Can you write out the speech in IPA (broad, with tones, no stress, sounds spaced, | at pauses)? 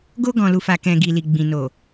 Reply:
ɡ o˧ ɡ ɔ̃˨ l u˨ f a˨ k ɛ̃˨ ɡ i˨ l i˨ ɡ͡b ĩ˨ n o˨